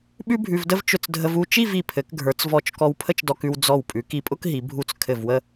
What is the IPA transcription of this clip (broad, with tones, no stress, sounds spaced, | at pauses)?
ɓ ʉ˥ bʱ ʉ˧ v d ə˥ v t͡ʃ ʊ˧˩ t͡s dʱ ə˧ v u˥˧ t͡ʃ i˥˧ v i˧˩ pʰ ɘ˩˧ k ɡʱ ə˞˩˧ t͡s v ɔ˧˩ t͡ʃ k ɔ˧ w pʰ ə˥ t͡ʃ d ɔ˧ k ʉ˧ w d͡z ɔ˧˩ w pʼ ʉ˩˧ k i˧ pʼ ʊ˥ k ɦ i˩˧ bʱ u˧ t͡s kʰ ɘ˧˩ v w ə˥˧